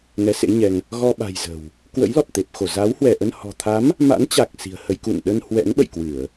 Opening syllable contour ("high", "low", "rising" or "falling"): rising